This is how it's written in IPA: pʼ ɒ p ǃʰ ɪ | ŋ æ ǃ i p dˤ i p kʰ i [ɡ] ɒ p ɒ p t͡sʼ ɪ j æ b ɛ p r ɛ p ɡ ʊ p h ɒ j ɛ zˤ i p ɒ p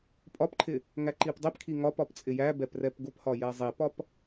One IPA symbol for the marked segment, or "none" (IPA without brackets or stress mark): ŋ